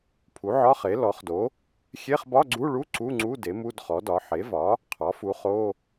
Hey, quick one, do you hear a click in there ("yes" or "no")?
yes